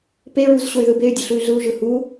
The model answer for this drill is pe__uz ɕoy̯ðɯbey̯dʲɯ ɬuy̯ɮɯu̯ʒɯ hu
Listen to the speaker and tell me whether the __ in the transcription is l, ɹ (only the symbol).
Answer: ɹ